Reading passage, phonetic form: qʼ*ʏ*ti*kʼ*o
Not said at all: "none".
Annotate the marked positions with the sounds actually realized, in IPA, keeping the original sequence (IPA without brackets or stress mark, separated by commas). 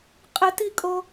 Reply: ɪ, kʼ